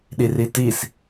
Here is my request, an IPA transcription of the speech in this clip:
ɗiritis

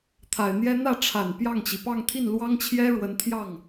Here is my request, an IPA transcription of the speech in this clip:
t̪ʰa˨˩ɪ̯n̪jɛ˥ n̪ä˥˩ʈ͡ʂʰa˨˩n pjɑ˥˩ŋt͡ɕi˩ pɑ˥˧ŋt̪ʰi˥˩nlwɑ˥ŋt͡ɕʰjɛ˥ ɻwə˧˥n t̪ʰjɑ˥˩ŋ

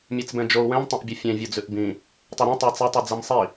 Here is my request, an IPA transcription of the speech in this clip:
mʲɛt͡sbɛ̃d͡ʒou̯ wɛ̃mtˤõʔbʲo fʲɛ̃ vʲɔd͡zʉʔbĩ | tˤoɾĩ tˤit͡sɛtˤʉ d͡zɛmsˤi

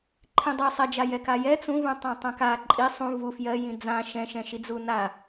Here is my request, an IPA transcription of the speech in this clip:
ǃʰĩdˤi sˤɛd͡ʒa jɛkajɛ t͡sũvũ tˤãtˤãka ǃʼi sˤũ vu fjɜ jĩd͡zã ʃɛ̃ʃɛ̃ ʃid͡zuna

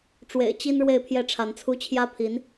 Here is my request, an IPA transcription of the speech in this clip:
ʈ͡ʂwḛ˨˩ɪ̯t͡ɕi˥n ɻwe˥˧ɪ̯pʰjɛ˥˩ʈ͡ʂʰa˧˥nt͡sʰu˥ t͡ɕʰjä˥pʰi˧˥n

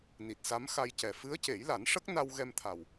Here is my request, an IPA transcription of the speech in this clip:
ni˨˩t̚sa˧˥m xa˧jcɛ˨˩ fɨ˧˥ə̯ce˨˩˦jla˨˩˦n ʂə˦˥k̚na˧w ɣɛ˧mt̪ʰa˨˩w

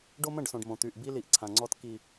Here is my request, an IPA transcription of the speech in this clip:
ɖo˦mə̃˦˨ɖsõ˨ɖ mõ˨t̪y˨ʔbi˦ li˨ʔǀʰã˨ŋ͡ǀɔ˦t ki˦

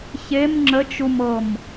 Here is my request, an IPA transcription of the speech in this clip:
çem ŋ͡ǁət͡ʃumɤm

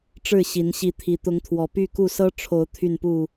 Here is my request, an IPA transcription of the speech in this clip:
ʈ͡ʂɻ̩˥˨ɕi˨˦n ɕi˨˦t̪ʰi˨˩ t̪ʊ˨˦ŋt̪ʰwɔ˨˩ py˥˨ku˥˨ sɤ˦ʈ͡ʂʰo˨˦ʊ̯ t̪ʰy˥˨npu˥˨

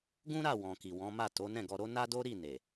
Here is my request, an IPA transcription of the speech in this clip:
ɡũ˦ɾa˦˨ wɔ̃˨ki˨ wɔ̃˨˦ma˦˨ to˨˦nɛ̃˦˨ɡɔ˧ɾo˦ na˦do˦ɾi˦˨ ne˨

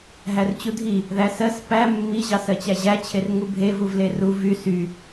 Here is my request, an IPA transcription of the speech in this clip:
ɦært͡ɕudʱi | ðæsɜs pæ mːi ʑɑsɜt͡ɕæʑæ t͡ɕʰerŋubʱe vuvleru vy sy

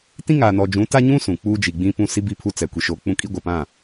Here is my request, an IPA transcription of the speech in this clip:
tĩ˦ŋaː˨nɔ˨d͡ʒũ˨˦ ta˦ɲũ˦ sũ˨ k͡puː˦d͡ʒi˨ɡ͡bĩ˦pũ˦ si˦bi˦˨pʰu˦ t͡sɛ˨ kʷi˨ʃoː˨˦k͡pũ˦ kʼi˦ɡʷa˨pã˦˨

